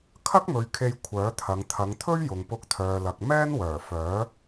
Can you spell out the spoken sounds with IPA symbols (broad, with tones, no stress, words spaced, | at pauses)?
kʰɐ˥k̚mɵ˨ɥ kʰe˧j kʷʰœː˨˥t̪ʰɐ˨˧ŋ t̪ʰɐ˨˧ŋt̪ʰɵ˥ɥ jʊ˨ŋpʊ˧k̚t̪ʰœː˨lɐ˨k̚ mɛː˥nwœː˨˩fœː˨˥